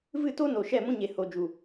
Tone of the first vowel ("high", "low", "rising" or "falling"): falling